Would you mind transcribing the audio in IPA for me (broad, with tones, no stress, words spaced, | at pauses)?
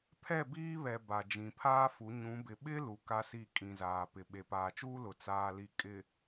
pʰɛ˦˨biː˦βɛ˨ ba˨d͡ʒĩ˨ pʰaː˦fu˨˦ ɲũ˨˦bɪ˨ ɓɪ˦ lu˨ka˦si˦˨ kʼĩ˨zaː˨pɪ˨ ɓe˨paː˨t͡ʃuː˦lʊ˨ t͡saː˨li˨ kʼɪ˨